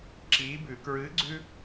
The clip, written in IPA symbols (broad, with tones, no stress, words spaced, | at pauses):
ǁiː˨˥bʉ˨˩˦ kɹɨː˨˥ɡ͡ǀʉ˦